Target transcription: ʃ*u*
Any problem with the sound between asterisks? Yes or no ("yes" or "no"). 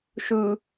yes